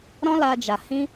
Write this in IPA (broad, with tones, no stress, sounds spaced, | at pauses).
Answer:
ɾ ɔ̃˦ l a˧ d͡ʒ a˨ h ĩ˧